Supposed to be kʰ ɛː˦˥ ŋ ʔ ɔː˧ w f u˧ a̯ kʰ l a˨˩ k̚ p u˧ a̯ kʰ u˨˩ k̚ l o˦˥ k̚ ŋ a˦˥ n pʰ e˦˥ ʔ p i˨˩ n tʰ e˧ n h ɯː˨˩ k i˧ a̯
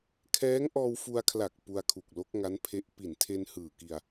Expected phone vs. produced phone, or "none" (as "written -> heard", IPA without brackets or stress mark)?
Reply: none